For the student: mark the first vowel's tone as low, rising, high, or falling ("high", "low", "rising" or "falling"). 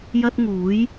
high